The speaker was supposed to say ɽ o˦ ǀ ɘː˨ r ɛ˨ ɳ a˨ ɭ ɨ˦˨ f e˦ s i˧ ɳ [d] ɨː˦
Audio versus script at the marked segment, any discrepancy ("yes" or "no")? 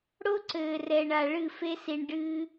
yes